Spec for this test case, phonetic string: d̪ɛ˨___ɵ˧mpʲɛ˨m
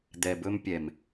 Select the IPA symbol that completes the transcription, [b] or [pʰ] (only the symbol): b